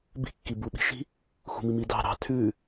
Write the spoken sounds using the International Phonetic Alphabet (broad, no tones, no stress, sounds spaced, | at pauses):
b i̤ kː i b u ɓ i̤ ʃ i̤ | x ṳ m i m i d ɑ̤ ɾ ɑ̤ tʰ ʉ